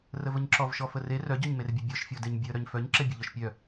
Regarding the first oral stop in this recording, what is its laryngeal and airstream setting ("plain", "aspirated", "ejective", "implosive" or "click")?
click